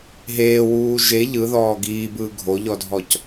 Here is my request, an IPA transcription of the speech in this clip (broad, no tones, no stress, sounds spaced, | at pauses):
ɦ eː w uː ʒ e ʎ ɯ ð ɔː ɡ iː b ɯː ɡʱ o ʎ ɔ dʱ ɔ c